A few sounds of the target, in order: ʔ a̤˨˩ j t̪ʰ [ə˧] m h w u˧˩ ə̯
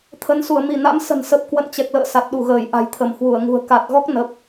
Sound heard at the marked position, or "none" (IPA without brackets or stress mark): ə˧˩